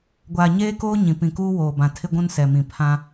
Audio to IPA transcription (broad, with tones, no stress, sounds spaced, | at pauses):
ɡʷ aː˨ ɲ eː˦ k oː˦ ɲ ĩ˨ p ĩ˨ k uː˦ w oː˨ b ã˨ tʰ ɪ˦ ɡʷ ũ˦ n s ɛ˨ m ĩ˨ pʰ ã˦